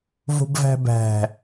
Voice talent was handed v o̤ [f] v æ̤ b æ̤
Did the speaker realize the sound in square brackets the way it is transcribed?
no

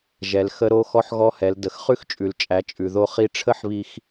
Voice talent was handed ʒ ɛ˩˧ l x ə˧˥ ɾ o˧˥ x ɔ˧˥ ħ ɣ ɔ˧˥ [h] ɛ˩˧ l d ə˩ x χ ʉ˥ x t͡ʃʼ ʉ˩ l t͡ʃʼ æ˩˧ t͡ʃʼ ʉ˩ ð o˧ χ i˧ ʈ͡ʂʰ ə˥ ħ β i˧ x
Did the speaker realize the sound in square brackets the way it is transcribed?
yes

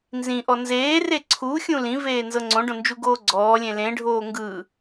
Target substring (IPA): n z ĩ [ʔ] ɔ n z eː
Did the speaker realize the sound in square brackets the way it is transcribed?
yes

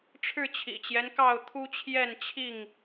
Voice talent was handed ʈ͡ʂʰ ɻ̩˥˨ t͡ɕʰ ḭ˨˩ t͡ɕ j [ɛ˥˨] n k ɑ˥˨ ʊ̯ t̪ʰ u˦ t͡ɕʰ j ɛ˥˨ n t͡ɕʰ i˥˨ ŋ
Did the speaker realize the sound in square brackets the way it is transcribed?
no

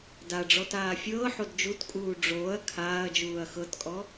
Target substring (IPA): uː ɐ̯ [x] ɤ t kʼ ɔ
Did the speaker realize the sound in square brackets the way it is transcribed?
yes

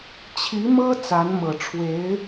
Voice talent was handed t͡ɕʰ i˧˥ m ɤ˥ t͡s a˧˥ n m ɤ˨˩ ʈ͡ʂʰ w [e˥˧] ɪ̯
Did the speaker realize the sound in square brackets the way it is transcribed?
no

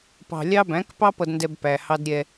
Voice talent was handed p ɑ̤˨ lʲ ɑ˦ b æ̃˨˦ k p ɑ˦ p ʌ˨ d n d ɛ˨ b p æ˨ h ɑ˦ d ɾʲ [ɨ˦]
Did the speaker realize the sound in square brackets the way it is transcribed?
no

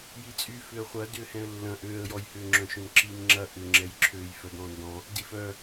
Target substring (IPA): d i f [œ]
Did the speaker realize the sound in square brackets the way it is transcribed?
yes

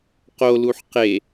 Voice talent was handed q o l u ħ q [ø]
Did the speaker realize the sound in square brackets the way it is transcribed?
no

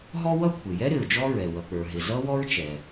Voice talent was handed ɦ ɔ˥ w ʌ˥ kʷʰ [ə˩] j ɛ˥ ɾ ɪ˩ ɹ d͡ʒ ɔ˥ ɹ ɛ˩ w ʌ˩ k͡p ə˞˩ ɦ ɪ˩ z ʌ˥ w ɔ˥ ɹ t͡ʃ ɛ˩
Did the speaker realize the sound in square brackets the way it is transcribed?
no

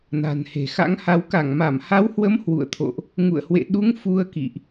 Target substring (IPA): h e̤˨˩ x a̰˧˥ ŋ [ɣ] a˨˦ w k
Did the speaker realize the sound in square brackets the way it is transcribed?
no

